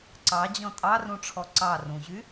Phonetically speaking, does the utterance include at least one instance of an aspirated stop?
yes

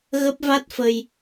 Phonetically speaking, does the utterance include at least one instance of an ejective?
no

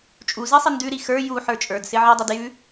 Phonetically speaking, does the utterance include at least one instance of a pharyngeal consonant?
yes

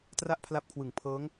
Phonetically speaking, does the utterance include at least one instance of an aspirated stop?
yes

